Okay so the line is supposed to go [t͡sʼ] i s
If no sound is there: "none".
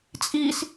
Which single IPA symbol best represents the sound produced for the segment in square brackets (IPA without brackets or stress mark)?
t͡sʼ